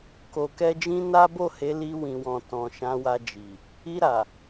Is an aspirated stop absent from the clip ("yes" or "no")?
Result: yes